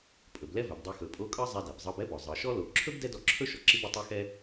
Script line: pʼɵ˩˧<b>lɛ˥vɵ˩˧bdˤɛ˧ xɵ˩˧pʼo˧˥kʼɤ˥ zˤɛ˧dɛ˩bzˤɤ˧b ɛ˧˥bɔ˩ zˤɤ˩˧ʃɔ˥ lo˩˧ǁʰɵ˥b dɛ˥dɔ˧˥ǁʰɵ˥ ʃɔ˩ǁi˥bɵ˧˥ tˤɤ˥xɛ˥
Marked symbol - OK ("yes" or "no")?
yes